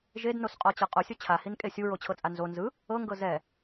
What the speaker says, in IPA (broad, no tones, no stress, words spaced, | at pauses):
ʒednosqʼɔt͡ɕɤ qʼosʲo t͡ɕʰahinkʼe sʲuɹot͡ɕʰɤt͡sʼa nzo nzɯ | ɤŋɡɤ zɛ